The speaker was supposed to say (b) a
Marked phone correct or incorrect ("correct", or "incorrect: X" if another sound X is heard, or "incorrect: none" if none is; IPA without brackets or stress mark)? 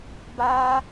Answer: correct